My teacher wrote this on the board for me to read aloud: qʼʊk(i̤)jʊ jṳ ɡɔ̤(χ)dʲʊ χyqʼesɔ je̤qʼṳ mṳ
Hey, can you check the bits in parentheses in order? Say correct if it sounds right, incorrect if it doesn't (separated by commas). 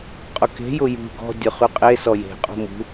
incorrect, incorrect